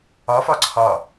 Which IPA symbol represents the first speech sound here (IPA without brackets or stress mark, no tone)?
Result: ɒ